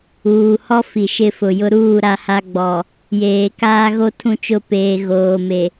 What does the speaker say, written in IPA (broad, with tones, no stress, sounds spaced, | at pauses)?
uː˨ h ɔ˦ f i˨ ʃ ɪ˦˨ f ʊ˨ j ʊ˦ ɾ uː˦˨ ɾ a˦ h a˦ ɡ͡b ɔ˨ | j eː˨ k aː˦ ɣ o˦ tʰ ũ˦˨ t͡ʃ ʊ˦˨ p eː˨ ɣ oː˨ m e˨